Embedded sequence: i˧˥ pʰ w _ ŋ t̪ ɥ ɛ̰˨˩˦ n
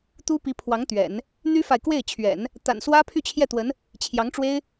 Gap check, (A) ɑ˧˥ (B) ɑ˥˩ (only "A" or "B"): A